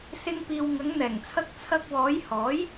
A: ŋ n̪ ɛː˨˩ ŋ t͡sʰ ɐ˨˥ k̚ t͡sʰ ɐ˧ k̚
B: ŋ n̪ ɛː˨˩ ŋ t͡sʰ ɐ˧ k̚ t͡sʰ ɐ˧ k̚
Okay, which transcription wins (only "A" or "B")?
B